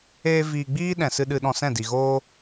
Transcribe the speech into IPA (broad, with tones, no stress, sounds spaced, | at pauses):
eː˦ v iː˧ ɡ͡b iː˦ ɗ ɛ̃˨ s ɨ˧ ɗ ɨ˧ ɗ ɔ̃˧ s ɛ̃˦˨ d i˨ ɣ oː˦